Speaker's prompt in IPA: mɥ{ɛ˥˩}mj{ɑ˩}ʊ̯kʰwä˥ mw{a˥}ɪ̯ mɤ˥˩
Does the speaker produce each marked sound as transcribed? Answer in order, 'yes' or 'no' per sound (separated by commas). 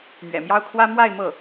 no, no, no